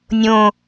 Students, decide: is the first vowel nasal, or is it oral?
nasal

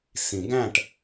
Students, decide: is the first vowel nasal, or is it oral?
nasal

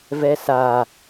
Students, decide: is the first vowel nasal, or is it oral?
oral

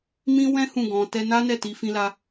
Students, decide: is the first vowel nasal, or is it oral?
nasal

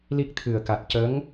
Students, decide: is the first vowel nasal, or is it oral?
oral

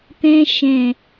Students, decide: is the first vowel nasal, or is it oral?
nasal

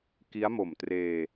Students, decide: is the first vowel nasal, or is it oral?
oral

